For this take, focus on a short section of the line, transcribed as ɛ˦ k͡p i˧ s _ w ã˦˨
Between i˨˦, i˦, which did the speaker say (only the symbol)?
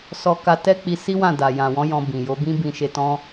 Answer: i˦